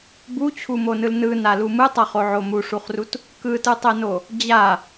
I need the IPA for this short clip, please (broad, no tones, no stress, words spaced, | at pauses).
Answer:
but͡ɕʰumonɯl nɯnalu mɯtˤʌχoʕo muʂuχrut | kɯtɯtˤɛno | d͡ʑa